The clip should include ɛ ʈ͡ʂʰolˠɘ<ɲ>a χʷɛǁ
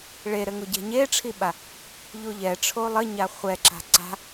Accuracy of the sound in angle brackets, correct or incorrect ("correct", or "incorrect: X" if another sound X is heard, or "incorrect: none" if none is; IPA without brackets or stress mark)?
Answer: correct